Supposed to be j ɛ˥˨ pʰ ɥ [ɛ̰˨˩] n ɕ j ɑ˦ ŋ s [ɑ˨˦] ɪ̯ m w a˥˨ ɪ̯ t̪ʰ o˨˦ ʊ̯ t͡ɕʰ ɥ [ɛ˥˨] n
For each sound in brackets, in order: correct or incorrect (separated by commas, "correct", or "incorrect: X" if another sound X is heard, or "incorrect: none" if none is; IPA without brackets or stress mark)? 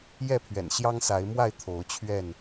correct, incorrect: a˨˦, correct